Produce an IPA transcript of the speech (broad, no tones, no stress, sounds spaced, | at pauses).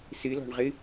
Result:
s ɨ l ɔ̤ ɳ ʁ ɨ